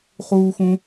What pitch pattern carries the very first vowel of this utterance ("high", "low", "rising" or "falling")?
high